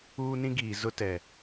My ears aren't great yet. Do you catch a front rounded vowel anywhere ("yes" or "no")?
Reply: no